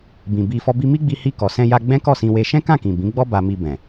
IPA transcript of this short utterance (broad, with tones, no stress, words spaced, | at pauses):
bĩ˨bi˧ fɔ˧bi˧mi˦ɡ͡bi˧ hi˧kɔ˨sɛ̃˧ja˧ ɡ͡bɛ̃˦kɔ˦˨sĩ˧we˧ ʃɛ̃˦kã˦˨kĩ˨ bĩ˨˦ɡ͡bɔ˦ ba˧mi˧ bɛ̃˨